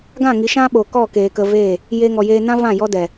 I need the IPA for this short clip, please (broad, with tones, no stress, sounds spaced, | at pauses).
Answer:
ɡ ã˦˨ ŋ i˨˦ ʃ ã˦ ɓ o˨ k ɔ˦˨ k eː˨ k ə˧ v eː˦˨ | j eː˧ ŋ ɔ˨ j eː˧ n ã˦ v ã˦˨ j ɔ˦ d ɛ˨